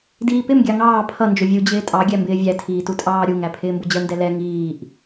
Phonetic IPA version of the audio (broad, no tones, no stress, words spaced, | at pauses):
diːpɪm ɡʲɑŋɑː pʰʌ nd͡ʒʊvʲu d͡ʑɪːtʼɑ ɡʲæmbɪːvʲæ tʰiːtutʼɑːɾʲu ŋæpʰɪːmbʊd͡ʑə ndɛlɛ ŋiːʔ